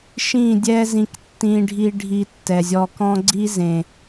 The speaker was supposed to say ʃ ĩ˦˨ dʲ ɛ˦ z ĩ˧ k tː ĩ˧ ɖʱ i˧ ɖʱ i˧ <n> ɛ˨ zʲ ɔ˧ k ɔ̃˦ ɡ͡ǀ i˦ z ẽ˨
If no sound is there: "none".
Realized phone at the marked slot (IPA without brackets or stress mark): tː